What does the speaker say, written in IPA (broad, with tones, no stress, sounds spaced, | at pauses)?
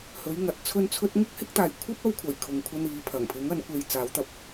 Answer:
h ɵ˨˥ ɥ ŋ ɐ˨˥ t̚ t͡sʰ ɵ˥ n t͡sʰ ɵ˥ t̚ ŋ ʊ˥ k̚ h ɪ˥ k̚ t̪ aː˨ j kʷʰ ɐ˥ p̚ ɐ˧ w kʷʰ ɐ˨˩ j kʰ ʊ˨˧ ŋ kʷʰ ɐ˥ n iː˨˥ pʰ ɐ˨˩ ŋ pʰ ɪ˨˥ ŋ ɐ˨˥ n kʷ e˧ j t͡s aː˨˥ w t̪ ɐ˧ p̚